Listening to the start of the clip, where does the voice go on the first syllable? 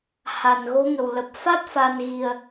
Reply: low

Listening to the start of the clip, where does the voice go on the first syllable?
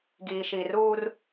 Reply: low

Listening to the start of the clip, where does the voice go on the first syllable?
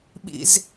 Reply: high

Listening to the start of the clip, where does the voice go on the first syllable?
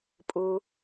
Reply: low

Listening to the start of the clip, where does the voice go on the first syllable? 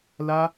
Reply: high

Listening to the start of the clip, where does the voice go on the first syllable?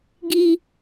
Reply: high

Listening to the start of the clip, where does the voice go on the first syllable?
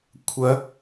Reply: rising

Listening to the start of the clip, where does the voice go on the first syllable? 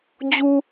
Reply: low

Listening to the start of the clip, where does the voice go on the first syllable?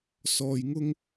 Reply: low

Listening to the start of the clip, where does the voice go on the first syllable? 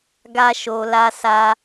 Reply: high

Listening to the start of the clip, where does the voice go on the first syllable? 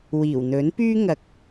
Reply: low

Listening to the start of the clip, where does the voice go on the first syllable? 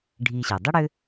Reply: low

